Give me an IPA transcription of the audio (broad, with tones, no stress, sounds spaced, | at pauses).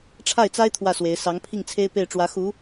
ʈ͡ʂʰ a˥˩ ɪ̯ t͡s a˥ ɪ̯ t̪ʰ w ä˥˩ s w e˧˥ ɪ̯ s ɑ˧˥ ŋ pʰ i˥˩ ŋ t͡sʰ e˥ ɪ̯ p e˥˩ ɪ̯ ʈ͡ʂ w ä˧˥ x u˧˥